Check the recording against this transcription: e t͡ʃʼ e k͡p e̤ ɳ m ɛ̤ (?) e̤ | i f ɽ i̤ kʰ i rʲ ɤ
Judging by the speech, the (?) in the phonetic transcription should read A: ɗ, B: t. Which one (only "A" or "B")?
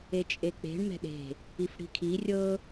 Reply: A